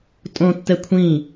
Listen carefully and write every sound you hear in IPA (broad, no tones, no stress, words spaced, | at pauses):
tʼõtːɛ kʷʰĩ